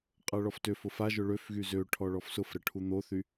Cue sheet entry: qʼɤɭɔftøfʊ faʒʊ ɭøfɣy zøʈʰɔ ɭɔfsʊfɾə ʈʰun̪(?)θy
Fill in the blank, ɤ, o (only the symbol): o